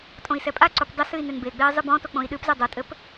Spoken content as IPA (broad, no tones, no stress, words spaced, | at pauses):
tʼõi̯sɛpʼaǀup dˤɘ sɨi̯nenbeɡ͡bei̯ zˤɨbɔ̃to k͡põi̯ɗɨpze dˤotʼɘp